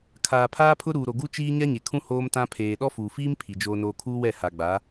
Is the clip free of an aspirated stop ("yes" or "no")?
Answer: no